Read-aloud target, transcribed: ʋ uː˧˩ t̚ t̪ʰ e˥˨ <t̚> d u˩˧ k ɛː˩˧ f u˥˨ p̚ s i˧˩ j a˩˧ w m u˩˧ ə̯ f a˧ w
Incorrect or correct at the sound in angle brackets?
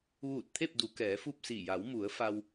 incorrect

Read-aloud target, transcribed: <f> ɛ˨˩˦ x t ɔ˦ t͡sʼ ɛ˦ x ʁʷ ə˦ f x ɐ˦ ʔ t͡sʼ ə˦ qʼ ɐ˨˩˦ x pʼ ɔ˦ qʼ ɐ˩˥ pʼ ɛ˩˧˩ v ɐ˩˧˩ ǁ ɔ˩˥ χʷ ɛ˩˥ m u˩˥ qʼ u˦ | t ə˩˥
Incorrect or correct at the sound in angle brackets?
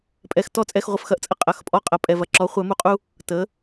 incorrect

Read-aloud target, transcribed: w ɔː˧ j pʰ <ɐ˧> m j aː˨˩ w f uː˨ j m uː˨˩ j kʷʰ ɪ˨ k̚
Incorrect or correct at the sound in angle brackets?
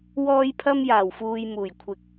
correct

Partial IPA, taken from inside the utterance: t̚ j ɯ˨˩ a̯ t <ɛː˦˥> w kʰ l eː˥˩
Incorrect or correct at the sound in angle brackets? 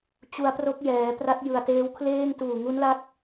incorrect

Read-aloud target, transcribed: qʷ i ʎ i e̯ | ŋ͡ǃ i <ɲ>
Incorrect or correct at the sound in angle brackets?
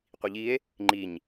correct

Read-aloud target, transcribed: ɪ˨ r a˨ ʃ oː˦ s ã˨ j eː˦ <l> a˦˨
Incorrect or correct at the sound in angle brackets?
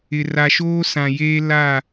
correct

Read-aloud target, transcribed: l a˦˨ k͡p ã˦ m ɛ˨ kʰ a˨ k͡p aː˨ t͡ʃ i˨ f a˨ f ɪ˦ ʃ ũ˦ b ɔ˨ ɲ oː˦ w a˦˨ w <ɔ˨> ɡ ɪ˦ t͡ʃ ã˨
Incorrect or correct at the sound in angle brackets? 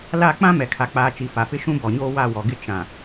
correct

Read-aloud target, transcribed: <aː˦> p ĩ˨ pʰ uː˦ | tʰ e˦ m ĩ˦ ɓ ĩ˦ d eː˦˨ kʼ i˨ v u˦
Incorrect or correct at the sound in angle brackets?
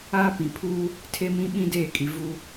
correct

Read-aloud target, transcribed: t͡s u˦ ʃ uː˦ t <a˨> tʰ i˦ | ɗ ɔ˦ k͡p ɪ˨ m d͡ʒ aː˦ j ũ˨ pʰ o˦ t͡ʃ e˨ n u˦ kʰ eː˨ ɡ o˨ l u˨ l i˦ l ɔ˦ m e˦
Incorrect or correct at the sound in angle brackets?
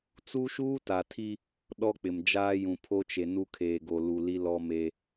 correct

